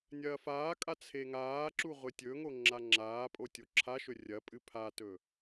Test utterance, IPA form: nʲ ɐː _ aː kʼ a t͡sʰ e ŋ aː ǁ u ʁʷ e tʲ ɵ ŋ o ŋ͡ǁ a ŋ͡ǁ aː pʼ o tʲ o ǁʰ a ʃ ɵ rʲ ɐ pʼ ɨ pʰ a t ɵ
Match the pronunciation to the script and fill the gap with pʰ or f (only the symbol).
f